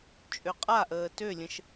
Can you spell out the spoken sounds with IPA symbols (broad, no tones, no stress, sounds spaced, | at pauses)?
t͡ʃʼ ø qʼ a ʔ əː t ø lʲ ə̃ ʃ